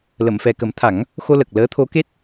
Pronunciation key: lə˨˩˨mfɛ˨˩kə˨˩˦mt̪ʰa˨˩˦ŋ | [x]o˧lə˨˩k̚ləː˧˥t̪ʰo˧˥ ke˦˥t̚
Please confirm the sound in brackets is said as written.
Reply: yes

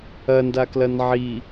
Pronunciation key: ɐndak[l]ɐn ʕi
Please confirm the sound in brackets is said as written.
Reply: yes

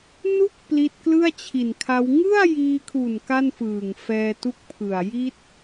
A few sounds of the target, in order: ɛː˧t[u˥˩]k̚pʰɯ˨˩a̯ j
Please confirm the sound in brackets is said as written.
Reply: yes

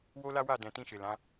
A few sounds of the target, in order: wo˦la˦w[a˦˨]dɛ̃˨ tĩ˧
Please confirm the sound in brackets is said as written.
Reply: yes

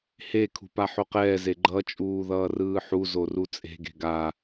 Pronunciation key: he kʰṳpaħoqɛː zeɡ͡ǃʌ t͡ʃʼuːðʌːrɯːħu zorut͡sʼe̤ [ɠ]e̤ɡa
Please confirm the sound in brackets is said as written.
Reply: no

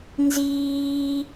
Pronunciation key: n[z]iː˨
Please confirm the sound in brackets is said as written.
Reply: yes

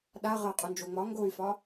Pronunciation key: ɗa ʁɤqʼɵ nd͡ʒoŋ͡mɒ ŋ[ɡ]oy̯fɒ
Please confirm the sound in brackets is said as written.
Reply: yes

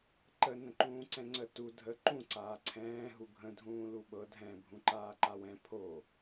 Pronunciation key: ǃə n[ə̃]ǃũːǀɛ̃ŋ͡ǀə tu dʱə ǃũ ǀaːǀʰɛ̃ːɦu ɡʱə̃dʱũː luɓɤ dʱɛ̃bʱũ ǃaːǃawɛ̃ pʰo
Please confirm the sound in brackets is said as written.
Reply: yes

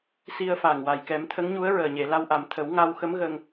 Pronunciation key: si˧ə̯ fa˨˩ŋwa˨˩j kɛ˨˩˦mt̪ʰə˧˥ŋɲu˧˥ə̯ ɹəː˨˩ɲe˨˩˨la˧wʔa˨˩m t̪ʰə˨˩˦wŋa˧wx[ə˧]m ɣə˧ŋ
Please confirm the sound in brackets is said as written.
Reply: no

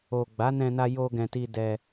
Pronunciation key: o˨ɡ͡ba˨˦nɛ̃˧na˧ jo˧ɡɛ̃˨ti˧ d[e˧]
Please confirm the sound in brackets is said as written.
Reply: no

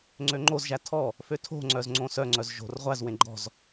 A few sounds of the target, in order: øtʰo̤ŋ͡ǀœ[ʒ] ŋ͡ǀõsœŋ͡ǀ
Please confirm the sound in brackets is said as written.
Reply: no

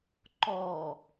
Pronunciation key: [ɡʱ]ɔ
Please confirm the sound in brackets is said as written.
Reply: no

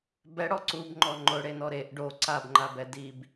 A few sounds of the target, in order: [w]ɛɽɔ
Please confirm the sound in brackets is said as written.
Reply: no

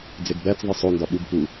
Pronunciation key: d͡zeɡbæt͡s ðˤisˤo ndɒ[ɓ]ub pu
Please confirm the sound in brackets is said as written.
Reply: yes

